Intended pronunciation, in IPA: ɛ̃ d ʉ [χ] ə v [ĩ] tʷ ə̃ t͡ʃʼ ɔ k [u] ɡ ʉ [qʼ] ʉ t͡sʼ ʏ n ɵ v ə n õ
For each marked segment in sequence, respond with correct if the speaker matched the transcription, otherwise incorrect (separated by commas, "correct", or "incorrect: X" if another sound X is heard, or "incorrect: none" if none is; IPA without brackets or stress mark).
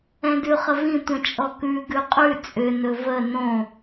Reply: correct, correct, incorrect: ʉ, correct